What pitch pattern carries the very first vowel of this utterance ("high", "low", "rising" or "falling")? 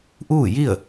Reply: falling